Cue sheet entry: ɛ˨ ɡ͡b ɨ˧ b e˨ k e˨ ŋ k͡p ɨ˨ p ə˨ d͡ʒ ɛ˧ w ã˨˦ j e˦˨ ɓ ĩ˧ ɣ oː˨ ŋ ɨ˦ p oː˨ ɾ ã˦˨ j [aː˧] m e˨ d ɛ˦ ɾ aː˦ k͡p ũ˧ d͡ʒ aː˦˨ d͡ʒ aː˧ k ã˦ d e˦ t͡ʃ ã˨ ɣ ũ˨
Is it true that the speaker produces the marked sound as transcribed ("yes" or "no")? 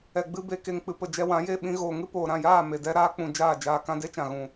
no